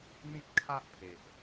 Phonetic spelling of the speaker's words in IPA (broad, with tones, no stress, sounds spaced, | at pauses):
n̪ ĩ˦ t̚ kʰ a˦ ʔ pʰ e˨ ʔ